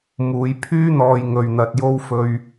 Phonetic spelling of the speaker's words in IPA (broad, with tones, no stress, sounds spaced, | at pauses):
m uː˨˧ j pʰ yː˥ n̪ ɔː˨ j ŋ ɵ˨ ɥ n̪ ɐ˨ t̚ j o˥ w f ɵ˧ ɥ